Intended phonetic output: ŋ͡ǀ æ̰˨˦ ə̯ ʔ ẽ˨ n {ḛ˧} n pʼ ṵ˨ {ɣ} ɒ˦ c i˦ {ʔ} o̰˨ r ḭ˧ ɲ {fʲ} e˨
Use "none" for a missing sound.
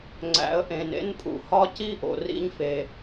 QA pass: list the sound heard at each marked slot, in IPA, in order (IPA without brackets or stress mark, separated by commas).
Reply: ḛ˦, h, ʔ, f